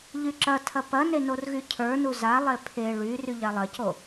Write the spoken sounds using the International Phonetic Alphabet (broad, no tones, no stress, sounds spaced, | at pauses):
ʎ y ǁ ɐ tʰ ɐ p ɐ n e n o r ɣ y cʰ ə˞ n u z a lˠ e pʰ e ɭ y r y ʎ a lˠ ɐ c o